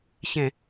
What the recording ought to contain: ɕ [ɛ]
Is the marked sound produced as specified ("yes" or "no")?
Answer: no